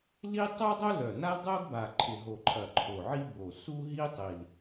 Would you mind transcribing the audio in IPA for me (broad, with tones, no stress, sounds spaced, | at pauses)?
l i˥ tˤ œ˥ dˤ o˥ l œ˨˩ n a˥ l dˤ o˥ ɡ b a˨˩ ǃʰ ɪ˨˩ ɦ o˨˩ ǃʼ ɐ˨˩ ǃʰ o˨˩ ʕ i˥ b o˨˩ s u˥ ɦ i˥ tˤ i˨˩ l